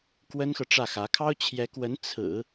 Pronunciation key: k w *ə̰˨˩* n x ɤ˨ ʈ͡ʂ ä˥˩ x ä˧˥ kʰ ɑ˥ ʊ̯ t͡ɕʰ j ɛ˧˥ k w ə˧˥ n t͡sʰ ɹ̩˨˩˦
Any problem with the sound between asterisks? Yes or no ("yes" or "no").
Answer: yes